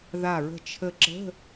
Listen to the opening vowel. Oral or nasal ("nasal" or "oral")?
oral